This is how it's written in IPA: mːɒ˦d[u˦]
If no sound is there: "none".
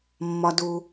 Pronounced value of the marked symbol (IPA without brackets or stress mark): u˦